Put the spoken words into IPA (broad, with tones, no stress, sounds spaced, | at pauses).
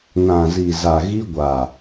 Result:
n ã˨ z i˨ z a˨ ɣ i˦ ɡʷ a˨